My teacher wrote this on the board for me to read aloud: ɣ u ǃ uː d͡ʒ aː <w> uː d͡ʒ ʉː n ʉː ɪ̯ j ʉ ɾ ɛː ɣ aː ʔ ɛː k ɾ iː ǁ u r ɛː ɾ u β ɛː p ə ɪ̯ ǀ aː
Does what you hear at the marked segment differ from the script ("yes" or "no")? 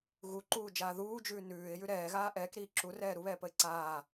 yes